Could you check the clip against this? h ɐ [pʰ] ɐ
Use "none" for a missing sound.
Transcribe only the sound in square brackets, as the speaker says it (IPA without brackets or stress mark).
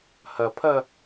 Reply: pʰ